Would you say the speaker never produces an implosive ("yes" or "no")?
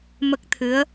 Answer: yes